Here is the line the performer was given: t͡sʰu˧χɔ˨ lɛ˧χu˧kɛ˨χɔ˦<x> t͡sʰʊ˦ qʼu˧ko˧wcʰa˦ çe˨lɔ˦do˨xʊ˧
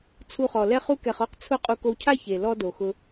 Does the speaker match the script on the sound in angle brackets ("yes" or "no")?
no